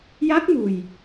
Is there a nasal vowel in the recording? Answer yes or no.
no